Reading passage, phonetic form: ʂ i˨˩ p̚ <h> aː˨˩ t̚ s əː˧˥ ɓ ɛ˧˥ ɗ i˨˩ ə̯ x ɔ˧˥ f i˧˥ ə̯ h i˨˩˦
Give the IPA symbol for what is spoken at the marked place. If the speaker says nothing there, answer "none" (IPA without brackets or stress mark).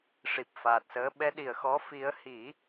f